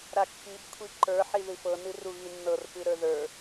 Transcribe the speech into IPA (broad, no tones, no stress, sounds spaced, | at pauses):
ɾ a kː i b kʷʰ i ǃ ə˞ ħ i ð ɨ f ɤ n ɨ r u ɣ i nː ɤ r p ɨ ɾ ə˞ ð ə˞